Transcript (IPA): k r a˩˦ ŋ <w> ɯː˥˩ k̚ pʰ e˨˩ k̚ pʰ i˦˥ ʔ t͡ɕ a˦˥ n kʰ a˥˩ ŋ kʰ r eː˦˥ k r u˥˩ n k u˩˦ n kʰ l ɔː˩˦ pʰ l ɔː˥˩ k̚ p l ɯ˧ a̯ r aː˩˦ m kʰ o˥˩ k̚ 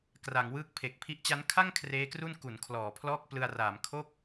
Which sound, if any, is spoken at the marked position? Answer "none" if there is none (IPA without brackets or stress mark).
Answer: w